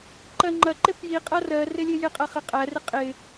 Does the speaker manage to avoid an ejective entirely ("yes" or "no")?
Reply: no